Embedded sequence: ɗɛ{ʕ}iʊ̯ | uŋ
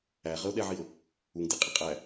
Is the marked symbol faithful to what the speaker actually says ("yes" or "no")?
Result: yes